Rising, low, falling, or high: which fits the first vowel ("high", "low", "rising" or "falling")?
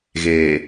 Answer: low